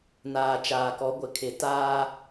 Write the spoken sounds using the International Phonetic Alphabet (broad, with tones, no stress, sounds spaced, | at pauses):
n aː˨ t͡ʃ aː˨ k ɔ˨˦ ɡʷ ɪ˨ kʰ ɪ˨ t aː˦